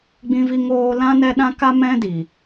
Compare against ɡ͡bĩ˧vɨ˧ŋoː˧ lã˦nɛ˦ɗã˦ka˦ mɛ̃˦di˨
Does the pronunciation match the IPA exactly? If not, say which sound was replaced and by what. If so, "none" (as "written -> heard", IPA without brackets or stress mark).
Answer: ɨ˧ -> i˧